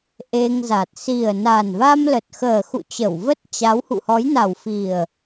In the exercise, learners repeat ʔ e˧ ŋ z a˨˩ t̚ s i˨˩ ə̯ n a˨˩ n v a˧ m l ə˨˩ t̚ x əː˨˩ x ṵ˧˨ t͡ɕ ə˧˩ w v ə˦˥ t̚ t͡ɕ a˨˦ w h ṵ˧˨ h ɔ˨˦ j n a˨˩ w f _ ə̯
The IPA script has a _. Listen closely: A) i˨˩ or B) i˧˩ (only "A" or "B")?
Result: A